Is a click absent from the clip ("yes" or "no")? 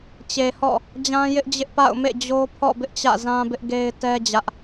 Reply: yes